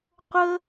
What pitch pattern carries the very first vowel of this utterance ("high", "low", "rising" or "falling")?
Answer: high